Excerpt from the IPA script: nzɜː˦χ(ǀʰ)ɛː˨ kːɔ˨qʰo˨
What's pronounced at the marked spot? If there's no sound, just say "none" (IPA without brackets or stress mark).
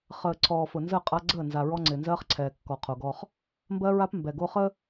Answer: ǀʰ